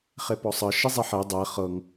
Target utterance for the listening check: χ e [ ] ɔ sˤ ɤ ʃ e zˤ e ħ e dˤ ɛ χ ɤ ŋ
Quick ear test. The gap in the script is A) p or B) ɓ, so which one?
A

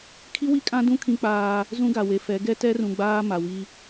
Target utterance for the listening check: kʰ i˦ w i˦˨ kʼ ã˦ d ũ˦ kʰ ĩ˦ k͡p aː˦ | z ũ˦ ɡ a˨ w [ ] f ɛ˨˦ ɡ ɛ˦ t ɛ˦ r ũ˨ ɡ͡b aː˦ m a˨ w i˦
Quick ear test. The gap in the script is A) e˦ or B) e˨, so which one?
B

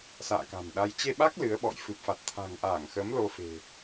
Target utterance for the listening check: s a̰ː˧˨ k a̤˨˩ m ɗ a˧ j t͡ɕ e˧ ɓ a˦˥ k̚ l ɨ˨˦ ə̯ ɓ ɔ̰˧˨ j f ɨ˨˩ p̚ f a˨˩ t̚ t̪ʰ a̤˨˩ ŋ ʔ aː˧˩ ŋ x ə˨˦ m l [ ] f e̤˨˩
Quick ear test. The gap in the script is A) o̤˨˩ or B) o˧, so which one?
B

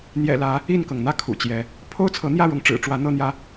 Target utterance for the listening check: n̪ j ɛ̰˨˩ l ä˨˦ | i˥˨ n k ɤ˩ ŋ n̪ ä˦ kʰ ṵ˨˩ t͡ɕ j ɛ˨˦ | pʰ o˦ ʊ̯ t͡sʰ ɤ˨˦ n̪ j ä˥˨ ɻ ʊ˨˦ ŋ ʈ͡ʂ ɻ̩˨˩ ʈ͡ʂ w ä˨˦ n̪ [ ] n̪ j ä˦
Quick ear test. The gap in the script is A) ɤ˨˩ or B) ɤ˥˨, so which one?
B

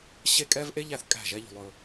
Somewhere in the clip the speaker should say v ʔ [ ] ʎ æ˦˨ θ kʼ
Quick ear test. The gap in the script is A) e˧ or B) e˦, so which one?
B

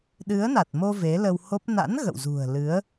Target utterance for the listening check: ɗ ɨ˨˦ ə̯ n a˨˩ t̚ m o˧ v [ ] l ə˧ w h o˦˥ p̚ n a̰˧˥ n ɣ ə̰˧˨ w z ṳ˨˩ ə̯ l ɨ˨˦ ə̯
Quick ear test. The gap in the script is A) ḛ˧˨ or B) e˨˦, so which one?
B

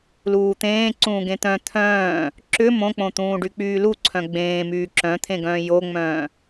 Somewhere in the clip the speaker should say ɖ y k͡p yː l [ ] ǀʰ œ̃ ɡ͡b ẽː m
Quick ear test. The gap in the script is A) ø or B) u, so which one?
B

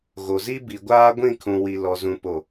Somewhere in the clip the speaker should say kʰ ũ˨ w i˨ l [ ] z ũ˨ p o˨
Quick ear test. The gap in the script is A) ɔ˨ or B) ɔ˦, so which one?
A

